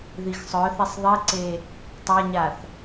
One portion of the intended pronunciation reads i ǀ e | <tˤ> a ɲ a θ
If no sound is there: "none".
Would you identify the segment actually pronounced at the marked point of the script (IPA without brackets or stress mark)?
tˤ